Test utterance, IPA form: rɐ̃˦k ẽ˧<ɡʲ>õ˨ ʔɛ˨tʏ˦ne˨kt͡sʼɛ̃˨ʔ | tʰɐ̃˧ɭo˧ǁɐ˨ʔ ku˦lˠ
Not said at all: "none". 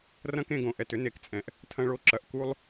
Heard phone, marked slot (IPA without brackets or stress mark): ɡ